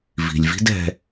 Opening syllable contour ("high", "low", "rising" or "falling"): low